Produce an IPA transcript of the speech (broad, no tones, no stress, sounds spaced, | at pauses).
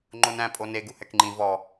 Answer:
ŋ͡ǃ o n æ̃ pʼ o n e ɡ u h ɛ k ŋ͡ǃ ĩ v ɔ